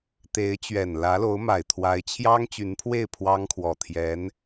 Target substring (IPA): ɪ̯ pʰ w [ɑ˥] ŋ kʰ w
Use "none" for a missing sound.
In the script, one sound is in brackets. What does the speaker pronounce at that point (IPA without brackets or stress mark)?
ɑ˥